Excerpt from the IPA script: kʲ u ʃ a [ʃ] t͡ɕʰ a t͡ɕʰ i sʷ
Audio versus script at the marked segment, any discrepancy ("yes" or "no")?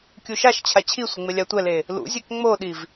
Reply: no